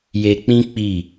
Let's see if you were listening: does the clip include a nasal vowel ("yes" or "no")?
yes